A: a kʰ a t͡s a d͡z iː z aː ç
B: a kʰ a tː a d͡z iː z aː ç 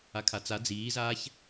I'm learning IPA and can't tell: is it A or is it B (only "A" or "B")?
A